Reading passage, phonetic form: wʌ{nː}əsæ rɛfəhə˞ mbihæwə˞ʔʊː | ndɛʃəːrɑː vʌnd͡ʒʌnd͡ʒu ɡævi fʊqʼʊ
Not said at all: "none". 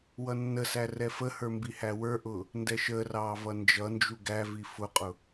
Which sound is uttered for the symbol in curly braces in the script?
nː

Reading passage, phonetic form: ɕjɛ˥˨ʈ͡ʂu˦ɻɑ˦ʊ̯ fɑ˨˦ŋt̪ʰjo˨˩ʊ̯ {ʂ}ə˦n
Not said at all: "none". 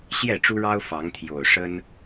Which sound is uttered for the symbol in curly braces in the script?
ʂ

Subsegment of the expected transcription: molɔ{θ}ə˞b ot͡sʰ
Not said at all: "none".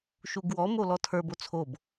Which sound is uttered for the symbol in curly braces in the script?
tʰ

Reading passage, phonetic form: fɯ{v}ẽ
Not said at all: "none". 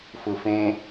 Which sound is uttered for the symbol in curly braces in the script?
f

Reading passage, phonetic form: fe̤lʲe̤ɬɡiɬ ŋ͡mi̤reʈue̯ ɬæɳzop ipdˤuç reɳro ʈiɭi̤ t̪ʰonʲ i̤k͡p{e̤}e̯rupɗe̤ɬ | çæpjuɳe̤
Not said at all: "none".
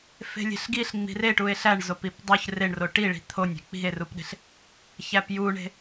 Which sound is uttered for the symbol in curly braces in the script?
i̤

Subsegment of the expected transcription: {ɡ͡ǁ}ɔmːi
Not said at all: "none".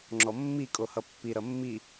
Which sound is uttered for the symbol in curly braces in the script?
ŋ͡ǁ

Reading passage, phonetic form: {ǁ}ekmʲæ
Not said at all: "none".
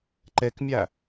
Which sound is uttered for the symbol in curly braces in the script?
ǃ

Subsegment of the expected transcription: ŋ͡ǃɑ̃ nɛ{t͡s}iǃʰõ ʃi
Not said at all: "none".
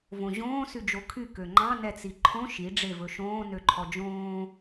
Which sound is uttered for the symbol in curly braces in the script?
t͡s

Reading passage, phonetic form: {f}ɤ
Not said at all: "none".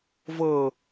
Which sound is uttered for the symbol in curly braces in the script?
v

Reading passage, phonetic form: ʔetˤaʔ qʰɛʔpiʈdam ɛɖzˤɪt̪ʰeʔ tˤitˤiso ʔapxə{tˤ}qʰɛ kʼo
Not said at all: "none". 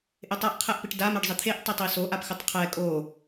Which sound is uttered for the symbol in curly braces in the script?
tˤ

